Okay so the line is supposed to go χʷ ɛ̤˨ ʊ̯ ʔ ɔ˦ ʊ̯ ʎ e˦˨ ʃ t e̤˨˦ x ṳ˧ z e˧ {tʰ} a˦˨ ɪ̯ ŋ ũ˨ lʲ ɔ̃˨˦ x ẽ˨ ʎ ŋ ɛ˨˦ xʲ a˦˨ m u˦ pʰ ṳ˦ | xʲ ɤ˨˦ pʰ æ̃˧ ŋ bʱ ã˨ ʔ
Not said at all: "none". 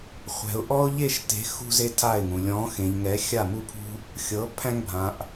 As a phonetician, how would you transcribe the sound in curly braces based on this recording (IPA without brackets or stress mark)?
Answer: tʰ